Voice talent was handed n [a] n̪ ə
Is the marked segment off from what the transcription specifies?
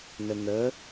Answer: yes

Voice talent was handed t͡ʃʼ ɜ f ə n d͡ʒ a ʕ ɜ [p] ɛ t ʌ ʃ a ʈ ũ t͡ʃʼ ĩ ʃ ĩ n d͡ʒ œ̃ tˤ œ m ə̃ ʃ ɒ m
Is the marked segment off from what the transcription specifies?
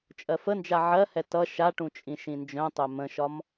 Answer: yes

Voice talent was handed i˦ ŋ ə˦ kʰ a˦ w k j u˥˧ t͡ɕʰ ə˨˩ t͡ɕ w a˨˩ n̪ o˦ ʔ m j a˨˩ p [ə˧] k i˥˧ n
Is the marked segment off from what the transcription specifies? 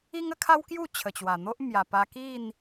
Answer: yes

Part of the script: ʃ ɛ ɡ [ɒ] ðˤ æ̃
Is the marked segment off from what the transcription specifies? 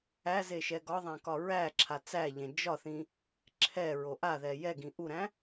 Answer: no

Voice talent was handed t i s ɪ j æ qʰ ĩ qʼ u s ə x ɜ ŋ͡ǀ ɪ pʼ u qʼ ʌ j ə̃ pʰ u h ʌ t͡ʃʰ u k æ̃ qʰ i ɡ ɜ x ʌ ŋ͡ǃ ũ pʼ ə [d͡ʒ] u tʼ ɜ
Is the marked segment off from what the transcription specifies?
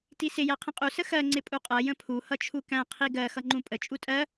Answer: yes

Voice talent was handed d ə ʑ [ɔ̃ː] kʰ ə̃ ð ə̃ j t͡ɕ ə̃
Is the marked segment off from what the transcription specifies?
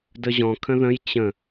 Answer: yes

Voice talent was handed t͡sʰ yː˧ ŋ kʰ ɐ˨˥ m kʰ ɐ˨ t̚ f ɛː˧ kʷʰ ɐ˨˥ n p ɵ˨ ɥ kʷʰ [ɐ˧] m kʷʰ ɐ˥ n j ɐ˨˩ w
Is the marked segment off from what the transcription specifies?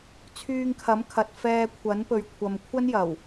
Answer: yes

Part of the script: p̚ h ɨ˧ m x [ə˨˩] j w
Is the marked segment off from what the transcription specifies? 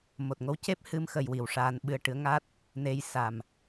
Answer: no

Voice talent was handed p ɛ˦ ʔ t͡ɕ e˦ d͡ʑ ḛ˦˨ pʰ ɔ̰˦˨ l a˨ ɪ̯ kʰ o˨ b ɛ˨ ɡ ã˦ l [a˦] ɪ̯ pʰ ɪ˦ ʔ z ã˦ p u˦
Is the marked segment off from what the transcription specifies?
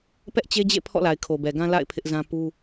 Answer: yes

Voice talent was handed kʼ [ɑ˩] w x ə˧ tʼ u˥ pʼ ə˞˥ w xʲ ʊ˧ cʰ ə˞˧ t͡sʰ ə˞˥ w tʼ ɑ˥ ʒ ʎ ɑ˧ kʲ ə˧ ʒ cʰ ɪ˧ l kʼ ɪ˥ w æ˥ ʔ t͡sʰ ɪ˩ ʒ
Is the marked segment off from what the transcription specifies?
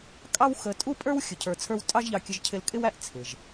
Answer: yes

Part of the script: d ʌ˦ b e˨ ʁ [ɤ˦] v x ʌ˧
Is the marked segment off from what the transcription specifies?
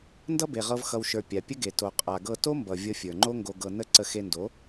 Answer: yes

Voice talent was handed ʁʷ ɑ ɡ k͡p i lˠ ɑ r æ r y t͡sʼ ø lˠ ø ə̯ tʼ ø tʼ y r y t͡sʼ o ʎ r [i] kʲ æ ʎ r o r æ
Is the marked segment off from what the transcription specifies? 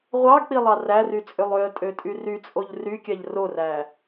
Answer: yes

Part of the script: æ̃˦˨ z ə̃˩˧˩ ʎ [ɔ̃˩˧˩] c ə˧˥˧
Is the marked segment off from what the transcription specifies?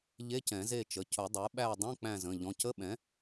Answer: no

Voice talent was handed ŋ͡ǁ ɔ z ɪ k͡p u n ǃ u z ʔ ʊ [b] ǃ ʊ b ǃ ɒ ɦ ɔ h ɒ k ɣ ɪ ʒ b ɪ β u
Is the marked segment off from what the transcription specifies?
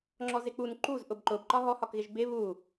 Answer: no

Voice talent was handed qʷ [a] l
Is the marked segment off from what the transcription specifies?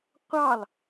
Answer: yes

